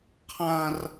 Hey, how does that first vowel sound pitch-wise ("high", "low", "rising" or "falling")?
high